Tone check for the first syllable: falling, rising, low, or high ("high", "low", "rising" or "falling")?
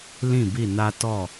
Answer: falling